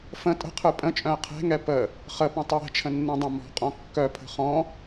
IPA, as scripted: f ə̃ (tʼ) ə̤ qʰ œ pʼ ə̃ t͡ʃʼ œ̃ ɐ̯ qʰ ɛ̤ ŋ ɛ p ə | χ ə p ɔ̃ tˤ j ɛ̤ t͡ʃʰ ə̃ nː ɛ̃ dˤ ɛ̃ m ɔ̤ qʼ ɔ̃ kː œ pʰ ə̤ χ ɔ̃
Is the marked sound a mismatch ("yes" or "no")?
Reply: no